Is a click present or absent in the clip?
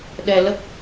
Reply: absent